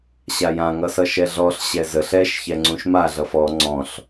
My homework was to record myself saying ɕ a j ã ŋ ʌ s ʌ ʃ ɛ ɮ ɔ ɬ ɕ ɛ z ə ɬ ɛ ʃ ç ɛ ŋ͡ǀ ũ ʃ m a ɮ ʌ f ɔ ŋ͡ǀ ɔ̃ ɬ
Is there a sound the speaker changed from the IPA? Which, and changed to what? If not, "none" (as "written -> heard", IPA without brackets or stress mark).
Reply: none